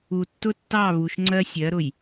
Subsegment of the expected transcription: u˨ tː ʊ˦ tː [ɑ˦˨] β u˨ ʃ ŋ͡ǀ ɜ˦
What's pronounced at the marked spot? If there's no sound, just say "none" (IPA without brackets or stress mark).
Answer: ɑ˦˨